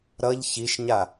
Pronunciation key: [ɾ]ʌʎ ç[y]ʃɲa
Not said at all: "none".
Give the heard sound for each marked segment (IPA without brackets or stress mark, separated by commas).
ɾ, i